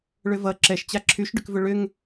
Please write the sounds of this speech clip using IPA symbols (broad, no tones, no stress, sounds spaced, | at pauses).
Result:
ɭ ʏ v ʌ ǁ ɛ ʃ t͡ɕ a ǁʰ y ʃ ɖ ʏ k v ʏ ɭ ʏ ŋ